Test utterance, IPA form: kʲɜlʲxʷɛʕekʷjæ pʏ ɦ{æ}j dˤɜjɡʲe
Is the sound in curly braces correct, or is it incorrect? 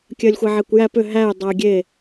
correct